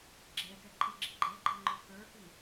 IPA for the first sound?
ɡ͡ǁ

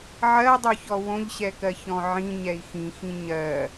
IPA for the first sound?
ʕ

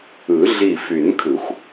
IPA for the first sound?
ɯ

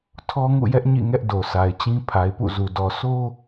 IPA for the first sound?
tʰ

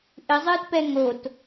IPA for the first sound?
ʔ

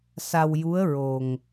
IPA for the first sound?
s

